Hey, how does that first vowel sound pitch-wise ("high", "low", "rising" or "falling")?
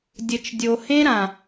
low